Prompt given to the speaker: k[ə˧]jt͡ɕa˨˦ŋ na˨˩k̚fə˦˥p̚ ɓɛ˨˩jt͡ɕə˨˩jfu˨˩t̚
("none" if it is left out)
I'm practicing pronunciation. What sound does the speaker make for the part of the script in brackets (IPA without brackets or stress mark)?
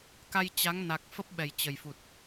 a˧